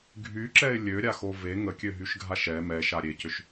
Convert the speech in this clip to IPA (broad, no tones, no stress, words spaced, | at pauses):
ɡʱyǁɛɪ̯ lʲøɾʲaxo ve ŋəkʲøɦyʃɡʱaʃ ɛ mɛʃa ɾʲecʏʃ